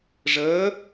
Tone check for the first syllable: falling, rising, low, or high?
rising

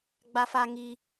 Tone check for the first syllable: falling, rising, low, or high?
high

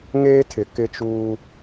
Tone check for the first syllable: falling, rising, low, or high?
high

